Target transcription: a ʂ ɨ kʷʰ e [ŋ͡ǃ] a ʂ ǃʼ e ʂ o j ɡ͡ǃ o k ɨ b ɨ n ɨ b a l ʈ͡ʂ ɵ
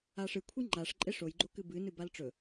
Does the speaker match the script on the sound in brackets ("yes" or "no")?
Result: yes